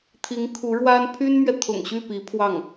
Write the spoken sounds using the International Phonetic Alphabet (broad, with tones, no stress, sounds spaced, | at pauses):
t̪ʰ i˧˥ ŋ kʰ u˧˥ ɻ w a˥ n pʰ y˥ n m ɥ ɛ˨ t̪ʰ ʊ̰˨˩ ŋ ɕ y˥˩ p i˧˥ pʰ w ɑ˥˩ ŋ